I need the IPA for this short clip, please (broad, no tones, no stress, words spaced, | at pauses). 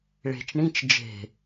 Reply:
ɭe̤t͡ʃ ɳĩt͡ʃ d͡ʒe̤